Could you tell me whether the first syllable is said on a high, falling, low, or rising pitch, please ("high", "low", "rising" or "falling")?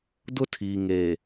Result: high